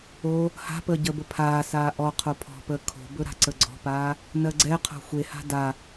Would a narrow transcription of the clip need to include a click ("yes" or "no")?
yes